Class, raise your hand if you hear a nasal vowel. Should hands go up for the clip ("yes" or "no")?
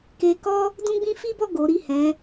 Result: yes